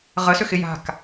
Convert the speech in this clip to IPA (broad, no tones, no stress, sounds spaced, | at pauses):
ʁ ə s ʏ x ɪ j a̤ k